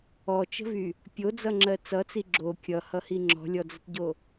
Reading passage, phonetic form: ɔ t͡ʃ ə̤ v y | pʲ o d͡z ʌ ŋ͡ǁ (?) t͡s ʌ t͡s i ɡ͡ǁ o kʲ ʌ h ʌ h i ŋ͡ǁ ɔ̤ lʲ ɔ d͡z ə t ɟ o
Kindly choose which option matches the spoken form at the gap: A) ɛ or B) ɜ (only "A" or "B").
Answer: B